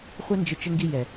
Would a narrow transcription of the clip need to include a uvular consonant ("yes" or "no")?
yes